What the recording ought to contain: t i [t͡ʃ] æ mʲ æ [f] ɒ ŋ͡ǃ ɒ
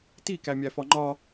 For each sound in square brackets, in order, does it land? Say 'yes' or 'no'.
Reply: no, yes

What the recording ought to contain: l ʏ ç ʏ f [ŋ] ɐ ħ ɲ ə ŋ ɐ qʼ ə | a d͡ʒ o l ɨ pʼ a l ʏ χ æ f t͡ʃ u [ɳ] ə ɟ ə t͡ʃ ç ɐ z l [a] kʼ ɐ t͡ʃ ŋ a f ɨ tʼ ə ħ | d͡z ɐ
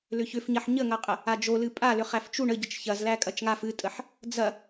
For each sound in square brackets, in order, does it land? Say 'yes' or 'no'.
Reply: no, yes, no

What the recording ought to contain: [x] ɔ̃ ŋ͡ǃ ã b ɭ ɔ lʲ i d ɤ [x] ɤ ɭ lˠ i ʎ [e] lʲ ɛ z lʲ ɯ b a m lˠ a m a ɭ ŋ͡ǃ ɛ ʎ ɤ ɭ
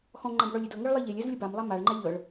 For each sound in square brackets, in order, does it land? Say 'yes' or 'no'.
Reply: yes, no, yes

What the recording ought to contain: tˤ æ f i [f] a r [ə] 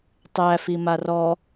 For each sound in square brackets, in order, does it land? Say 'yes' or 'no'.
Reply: no, no

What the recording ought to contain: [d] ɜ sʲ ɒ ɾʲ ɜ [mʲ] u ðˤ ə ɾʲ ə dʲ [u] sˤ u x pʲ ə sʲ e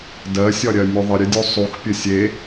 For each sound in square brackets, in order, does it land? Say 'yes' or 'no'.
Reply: yes, yes, yes

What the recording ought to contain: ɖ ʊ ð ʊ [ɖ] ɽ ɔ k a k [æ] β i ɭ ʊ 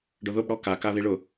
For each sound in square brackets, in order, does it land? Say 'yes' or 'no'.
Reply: no, no

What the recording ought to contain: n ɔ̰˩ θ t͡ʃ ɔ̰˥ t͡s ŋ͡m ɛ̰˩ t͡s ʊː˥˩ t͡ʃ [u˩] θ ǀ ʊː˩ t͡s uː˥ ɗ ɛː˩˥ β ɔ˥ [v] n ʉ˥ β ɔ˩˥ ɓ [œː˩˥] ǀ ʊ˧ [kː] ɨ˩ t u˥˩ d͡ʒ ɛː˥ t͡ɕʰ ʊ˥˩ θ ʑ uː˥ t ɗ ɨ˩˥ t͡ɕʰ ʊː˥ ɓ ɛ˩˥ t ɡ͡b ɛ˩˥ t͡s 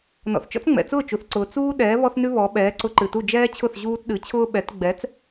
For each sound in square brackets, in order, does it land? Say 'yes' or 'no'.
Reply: yes, no, no, no

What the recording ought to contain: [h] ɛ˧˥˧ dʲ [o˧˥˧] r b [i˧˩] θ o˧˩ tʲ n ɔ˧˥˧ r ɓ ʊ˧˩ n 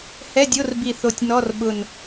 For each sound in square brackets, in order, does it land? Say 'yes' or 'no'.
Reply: yes, yes, yes

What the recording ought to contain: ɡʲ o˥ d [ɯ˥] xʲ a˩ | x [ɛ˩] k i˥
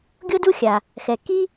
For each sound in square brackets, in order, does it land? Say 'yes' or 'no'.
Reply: no, yes

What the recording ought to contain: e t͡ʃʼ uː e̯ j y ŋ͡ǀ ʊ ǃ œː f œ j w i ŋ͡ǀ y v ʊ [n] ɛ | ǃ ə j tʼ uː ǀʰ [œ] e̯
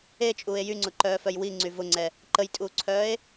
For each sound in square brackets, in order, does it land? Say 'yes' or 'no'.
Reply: no, no

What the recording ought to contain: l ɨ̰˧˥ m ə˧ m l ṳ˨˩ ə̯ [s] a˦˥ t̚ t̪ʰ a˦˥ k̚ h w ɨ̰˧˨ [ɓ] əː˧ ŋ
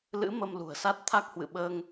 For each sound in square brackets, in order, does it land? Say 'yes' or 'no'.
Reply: yes, yes

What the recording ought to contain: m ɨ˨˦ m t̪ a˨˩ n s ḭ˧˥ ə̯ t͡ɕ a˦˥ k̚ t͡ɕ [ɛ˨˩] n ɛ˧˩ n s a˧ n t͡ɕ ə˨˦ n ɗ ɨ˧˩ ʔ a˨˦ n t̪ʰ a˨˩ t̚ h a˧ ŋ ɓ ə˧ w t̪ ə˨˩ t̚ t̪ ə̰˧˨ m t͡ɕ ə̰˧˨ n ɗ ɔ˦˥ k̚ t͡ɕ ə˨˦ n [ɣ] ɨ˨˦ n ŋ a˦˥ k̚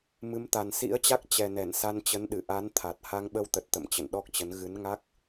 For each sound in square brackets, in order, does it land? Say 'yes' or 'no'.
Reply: yes, yes

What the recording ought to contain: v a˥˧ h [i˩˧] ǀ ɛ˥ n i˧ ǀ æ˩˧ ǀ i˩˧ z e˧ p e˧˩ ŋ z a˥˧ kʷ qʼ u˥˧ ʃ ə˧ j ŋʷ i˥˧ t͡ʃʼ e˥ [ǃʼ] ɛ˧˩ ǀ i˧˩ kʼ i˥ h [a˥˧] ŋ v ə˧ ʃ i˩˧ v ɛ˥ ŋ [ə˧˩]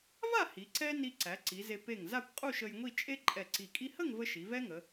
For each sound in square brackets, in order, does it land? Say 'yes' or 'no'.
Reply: yes, yes, no, no

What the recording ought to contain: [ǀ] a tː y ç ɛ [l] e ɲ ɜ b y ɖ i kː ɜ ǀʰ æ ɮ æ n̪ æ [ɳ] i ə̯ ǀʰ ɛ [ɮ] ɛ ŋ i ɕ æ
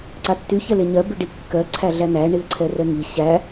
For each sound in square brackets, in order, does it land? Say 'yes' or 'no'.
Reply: yes, yes, yes, no

